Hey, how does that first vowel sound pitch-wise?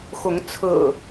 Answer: rising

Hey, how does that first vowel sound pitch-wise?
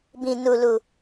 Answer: low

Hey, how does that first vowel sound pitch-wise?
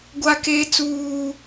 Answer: high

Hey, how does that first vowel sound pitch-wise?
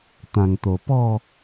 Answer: low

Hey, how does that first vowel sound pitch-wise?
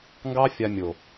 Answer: high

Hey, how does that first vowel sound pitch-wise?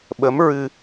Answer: rising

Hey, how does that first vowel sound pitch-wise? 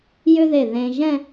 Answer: high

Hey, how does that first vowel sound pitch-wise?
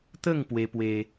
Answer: falling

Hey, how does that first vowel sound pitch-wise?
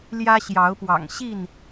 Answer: high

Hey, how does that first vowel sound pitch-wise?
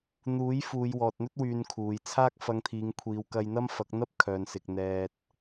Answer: rising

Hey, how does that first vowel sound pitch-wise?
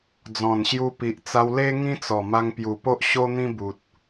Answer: low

